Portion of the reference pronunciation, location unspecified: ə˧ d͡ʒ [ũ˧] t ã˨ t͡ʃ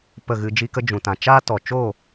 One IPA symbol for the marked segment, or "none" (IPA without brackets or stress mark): ũ˨